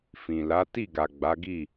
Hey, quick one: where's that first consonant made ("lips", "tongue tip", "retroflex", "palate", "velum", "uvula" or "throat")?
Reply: lips